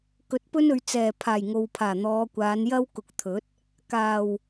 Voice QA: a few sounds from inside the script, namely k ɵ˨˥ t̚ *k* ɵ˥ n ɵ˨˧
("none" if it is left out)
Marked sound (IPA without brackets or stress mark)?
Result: p